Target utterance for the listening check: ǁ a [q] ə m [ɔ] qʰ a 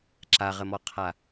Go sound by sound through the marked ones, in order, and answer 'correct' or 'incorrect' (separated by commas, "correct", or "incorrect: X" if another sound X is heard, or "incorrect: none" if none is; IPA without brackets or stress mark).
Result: incorrect: ʁ, correct